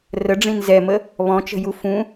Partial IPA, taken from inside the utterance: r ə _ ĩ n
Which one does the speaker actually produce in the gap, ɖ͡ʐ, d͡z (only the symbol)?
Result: ɖ͡ʐ